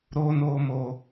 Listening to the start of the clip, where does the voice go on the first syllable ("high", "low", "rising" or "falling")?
high